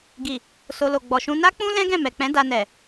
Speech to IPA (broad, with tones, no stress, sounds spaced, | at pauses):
ɡ i˨ | s o˧ l o˨ ɡ͡b ɔ˨ ʃ ũ˧ n a˦ k͡p ũ˦ l ɛ̃˦ ɡ ɛ̃˦˨ m ɛ˨ k͡p ɛ̃˨˦ d a˧ n ɛ˨